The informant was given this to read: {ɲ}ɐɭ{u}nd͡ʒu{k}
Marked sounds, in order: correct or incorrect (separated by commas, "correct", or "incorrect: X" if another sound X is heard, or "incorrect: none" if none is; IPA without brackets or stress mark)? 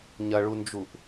correct, correct, incorrect: ʔ